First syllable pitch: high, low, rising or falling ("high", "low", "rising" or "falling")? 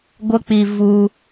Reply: high